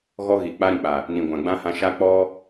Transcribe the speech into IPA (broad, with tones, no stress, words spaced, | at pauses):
ɣɔ˦ɣi˨ k͡pa˦ɾĩ˨k͡pa˨ | nĩ˨ɡʷã˨ɡ͡bã˦hã˧ ʃa˦ k͡pɔ˦